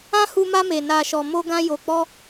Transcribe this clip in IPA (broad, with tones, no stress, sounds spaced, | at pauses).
ã˦ h u˧ m a˧ m e˨ n a˨ ʃ ɔ˨ m o˧ ɡ ã˧ j o˨ k͡p ɔ˧